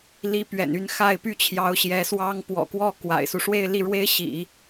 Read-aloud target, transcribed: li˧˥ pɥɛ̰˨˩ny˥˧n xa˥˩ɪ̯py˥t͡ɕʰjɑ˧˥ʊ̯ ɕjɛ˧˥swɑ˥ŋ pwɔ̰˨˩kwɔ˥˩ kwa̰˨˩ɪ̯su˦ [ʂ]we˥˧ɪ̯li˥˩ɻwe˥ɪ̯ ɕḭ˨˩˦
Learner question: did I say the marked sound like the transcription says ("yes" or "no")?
yes